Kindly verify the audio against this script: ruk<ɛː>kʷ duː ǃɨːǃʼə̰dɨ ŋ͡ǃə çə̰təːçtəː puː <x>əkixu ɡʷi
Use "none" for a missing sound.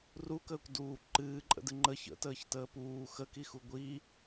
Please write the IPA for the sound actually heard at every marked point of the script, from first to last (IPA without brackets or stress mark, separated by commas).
əː, x